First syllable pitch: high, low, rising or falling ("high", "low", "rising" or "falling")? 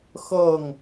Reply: falling